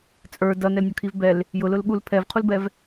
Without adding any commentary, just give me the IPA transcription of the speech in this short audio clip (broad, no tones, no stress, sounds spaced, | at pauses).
t͡sʼ ə˞ d ʌ n ɛ l nʲ ɔ kʰ i v b ɛ l | j ʊ l ʊ l ɠ u l pʰ ɛ v qʰ u l b ɛ v